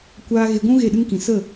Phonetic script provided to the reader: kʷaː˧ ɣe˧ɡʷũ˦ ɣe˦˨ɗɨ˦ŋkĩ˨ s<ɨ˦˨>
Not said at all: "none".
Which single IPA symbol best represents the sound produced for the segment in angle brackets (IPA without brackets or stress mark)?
ə˦˨